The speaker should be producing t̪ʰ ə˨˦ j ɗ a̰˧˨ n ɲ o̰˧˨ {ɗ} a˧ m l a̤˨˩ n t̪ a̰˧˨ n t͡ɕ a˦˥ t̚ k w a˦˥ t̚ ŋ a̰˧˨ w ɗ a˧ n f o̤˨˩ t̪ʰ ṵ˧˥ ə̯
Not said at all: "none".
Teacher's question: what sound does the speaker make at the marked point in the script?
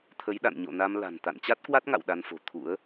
n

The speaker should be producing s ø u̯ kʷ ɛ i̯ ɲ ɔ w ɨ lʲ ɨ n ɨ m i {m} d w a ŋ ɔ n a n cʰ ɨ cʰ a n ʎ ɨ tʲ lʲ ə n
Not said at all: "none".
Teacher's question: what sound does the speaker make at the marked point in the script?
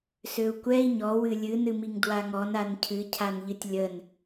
ŋ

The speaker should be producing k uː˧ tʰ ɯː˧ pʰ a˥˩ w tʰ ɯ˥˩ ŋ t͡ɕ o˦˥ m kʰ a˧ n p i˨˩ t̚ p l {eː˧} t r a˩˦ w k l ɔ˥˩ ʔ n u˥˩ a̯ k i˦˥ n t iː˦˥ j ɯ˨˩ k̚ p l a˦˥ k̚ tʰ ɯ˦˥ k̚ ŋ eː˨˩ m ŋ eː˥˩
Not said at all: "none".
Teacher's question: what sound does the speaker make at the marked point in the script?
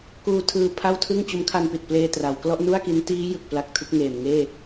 eː˧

